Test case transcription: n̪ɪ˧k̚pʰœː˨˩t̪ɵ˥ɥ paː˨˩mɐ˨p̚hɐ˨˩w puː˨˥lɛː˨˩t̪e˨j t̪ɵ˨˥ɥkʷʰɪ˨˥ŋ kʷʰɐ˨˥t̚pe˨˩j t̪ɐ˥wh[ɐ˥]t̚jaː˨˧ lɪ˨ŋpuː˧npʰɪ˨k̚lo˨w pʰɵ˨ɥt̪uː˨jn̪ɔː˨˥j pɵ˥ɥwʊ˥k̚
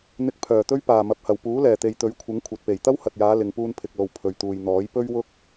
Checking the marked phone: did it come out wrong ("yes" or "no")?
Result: yes